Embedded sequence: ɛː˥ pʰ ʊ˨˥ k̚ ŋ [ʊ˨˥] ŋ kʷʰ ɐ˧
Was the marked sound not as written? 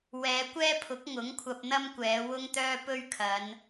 no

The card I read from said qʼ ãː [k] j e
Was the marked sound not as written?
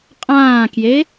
no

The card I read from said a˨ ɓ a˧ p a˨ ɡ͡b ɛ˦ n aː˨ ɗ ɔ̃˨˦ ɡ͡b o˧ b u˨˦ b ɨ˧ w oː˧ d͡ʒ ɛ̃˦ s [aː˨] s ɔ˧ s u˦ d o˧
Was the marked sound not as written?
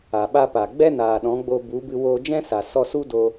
yes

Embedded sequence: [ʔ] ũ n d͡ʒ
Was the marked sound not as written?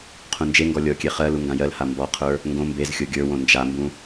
yes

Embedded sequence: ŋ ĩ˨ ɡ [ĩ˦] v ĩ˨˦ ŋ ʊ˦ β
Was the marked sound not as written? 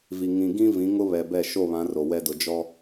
no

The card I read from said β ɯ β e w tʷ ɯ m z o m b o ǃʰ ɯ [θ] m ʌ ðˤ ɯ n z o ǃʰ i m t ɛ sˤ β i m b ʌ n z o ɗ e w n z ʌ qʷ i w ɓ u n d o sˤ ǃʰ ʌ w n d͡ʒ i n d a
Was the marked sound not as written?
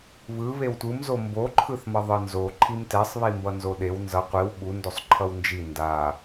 no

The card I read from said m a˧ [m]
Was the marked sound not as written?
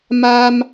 no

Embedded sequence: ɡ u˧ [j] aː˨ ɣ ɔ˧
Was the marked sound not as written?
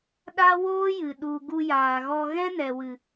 no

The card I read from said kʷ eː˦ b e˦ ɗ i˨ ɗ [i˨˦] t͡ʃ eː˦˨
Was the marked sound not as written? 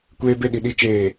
yes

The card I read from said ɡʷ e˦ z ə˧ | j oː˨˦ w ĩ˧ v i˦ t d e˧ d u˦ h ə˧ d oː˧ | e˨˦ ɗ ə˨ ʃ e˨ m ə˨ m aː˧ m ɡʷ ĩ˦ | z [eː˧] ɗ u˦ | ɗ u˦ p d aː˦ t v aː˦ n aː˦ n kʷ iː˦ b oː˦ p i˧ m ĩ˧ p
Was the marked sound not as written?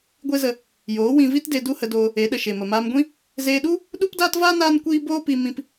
no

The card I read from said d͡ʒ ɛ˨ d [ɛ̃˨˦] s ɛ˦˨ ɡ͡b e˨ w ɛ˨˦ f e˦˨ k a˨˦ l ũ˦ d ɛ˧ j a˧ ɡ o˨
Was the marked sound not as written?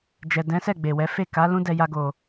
no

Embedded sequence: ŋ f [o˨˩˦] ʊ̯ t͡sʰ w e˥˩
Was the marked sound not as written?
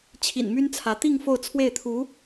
yes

